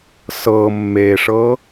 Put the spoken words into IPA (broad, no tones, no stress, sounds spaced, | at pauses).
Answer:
s ɤ mː e ʂ ɤ